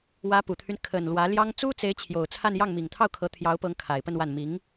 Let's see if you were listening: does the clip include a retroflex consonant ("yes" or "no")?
no